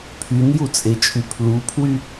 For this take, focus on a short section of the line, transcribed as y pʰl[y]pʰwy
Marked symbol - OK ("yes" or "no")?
no